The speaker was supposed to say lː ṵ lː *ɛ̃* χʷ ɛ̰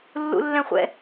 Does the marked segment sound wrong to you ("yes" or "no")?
no